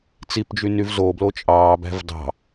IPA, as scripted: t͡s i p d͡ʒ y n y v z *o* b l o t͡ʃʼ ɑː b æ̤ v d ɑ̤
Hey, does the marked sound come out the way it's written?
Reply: yes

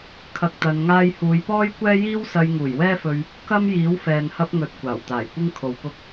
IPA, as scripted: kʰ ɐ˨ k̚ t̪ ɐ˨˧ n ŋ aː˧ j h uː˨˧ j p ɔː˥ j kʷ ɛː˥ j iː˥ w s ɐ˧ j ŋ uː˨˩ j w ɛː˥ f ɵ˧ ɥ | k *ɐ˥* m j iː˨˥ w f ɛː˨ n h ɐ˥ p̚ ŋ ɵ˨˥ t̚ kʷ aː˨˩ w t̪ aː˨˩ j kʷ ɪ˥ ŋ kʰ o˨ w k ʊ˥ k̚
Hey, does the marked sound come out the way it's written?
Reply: yes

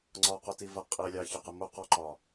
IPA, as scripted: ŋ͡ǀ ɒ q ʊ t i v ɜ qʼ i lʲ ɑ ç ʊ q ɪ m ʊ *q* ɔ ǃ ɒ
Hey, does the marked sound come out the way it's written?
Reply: yes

